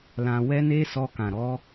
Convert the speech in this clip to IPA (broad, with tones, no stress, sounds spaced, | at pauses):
l ã˧ w ɛ˦ n e˦ s ɔ˧ k ã˨ ɾ ɔ˨˦